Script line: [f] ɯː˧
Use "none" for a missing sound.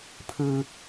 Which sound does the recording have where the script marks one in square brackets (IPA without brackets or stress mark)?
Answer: pʰ